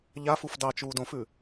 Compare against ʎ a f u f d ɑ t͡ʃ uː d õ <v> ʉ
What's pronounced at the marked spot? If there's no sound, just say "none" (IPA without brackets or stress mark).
f